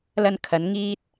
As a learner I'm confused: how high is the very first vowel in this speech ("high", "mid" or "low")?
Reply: low